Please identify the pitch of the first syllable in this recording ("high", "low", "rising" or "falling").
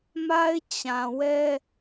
high